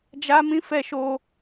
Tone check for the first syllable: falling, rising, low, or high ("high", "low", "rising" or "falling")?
high